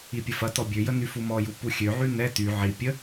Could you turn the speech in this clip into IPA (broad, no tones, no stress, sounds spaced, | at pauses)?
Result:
i pʲ ə f ɐ t ɔ bʲ ø j ə n y f u m ɔ j u p u xʲ ø ʕ y n ɛ t y ʕ i pʲ ə